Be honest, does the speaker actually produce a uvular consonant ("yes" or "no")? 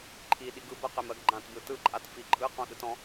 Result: yes